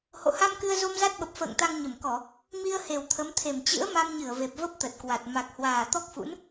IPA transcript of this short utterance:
h o̰˧˨ h a˧ m k ɨ˧ ə̯ z o˧ m z a˦˥ t̚ ɓ ə˨˩ p̚ f ə̰ː˧˨ ŋ t̪ a˧ ŋ ɲ ə˧˩ m k ɔ˧˩˨ | m i˧ ə̯ h e˨˩ w t̪ʰ ə˨˦ m t̪ʰ e˨˩ m t͡ɕ ɨ̰˧˥ ə̯ m a˧ m ɲ ɨ˧˩ ə̯ v e˨˩ p̚ v ə˦˥ p̚ t̪ ə˨˩ t̚ k w a˨˩ t̚ m a˨˩ k̚ h w aː˨˩ t̪ ɔ˦˥ k̚ f ṵ˧˥ n

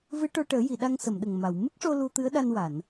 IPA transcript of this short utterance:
v ɨ˧˥ ʈ o˧ ʈ əː˨˩˦ j i˨˩˨ ɗ a˧ ŋ s ə˨˩˨ m ɗ ə˨˩ ŋ m a˨˩˨ w m ɨ˦˥ k̚ ʂ o˧ l u˧ t̪ ɨ˧˥ ə̯ ɗ a˧ n w a˨˩˨ n

